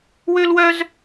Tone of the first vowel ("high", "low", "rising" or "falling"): high